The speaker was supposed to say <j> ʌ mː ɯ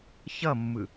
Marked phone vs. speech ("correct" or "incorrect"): incorrect